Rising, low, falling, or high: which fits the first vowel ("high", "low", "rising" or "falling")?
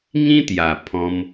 high